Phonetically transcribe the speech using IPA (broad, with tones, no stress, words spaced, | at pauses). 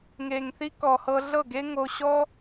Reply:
ŋe˨ŋθi˦kɔ˨hɤ˧ ɮɤ˦˨ɡe˦ŋo˧ɕɔ˦